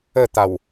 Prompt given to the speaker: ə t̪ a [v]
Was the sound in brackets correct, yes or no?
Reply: no